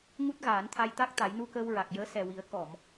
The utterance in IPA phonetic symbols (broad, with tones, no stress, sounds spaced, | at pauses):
ŋ u˦˥ t̚ ɣ aː˨˩˦ n t̪ʰ a˧ j t̪ a˦˥ k̚ t̪ a˨˩˦ j n u˧ k əː˧ w ɹ a˨˩ k̚ j əː˧˥ s ɛ˨˩ w i˨˩˦ ə̯ k ɔ˨˩˨ m